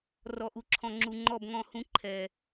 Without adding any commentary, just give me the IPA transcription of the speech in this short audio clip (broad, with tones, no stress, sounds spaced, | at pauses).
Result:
r ɔ˨ ʔ u˨ ǁʰ ɔ̃˨ ŋ͡ǁ u˨ ŋ͡ǃ ɔ˦˨ b ŋ ɔ̃˦˨ h ũ˦ ǃʰ ɛ˨